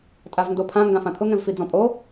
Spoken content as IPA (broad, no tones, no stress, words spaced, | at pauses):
tʼavndopʰã ŋɡãfãt̪ʰʊ ŋɛ̃vfid͡zɔ̃pʼo